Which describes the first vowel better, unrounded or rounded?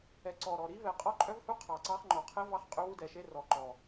unrounded